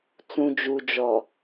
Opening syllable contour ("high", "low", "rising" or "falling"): low